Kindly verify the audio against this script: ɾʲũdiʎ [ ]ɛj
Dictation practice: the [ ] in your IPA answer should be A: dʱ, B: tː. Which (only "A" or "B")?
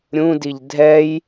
A